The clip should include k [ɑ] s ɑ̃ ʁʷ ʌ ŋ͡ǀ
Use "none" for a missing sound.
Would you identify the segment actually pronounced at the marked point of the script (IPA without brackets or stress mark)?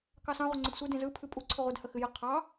ɑ